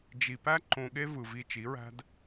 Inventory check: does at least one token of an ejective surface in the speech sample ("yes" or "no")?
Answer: no